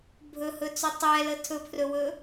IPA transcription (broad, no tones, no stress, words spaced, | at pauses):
bʱɵhɵt͡sɵ tˤɛlə tʰɵpʰrɵwɵ